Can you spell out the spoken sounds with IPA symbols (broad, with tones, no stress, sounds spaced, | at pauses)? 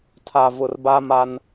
tʰ a˨ v ʊ˨ r b a˦ m a˦ n